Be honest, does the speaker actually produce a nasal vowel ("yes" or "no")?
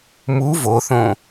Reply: yes